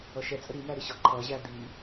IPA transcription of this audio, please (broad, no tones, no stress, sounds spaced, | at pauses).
ʌ ʃ ɛ t͡sʼ ə ɾ i n̪ æ ɾ ɪ ɕ ʌ ǃʰ ʌ ʑ æ d̪ i